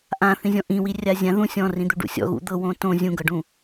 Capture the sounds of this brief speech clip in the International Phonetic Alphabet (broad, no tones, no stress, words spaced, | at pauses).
ʔãθĩzʲɔ̃ ʔĩwirʲa zʲã ðũ sʲɔ̃rĩd̪u ɖṵsʲɔ̰ ɣṵd̪ɤ wõtõ zʲũɡɤɖũ